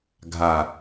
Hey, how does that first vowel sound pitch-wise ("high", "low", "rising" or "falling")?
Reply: low